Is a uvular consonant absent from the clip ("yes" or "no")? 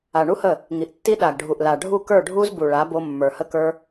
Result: yes